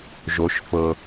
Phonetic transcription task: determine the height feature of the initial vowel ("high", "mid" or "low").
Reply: mid